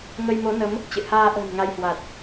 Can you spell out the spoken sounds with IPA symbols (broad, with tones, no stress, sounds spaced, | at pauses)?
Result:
ŋ ə˧ j m o˨˦ n ə˨˦ m | t͡ɕ ɨ̰˧˨ h aː˧ ʔ ə̤ː˨˩ n ŋ a˧ j h w a˨˩ t̚